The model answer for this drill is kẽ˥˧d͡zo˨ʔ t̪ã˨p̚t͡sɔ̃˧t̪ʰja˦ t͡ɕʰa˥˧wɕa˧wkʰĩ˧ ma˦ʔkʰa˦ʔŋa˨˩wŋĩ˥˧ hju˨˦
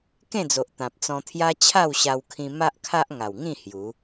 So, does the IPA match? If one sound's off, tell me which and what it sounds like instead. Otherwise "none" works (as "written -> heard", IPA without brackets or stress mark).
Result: none